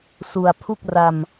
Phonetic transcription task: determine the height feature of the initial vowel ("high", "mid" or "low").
high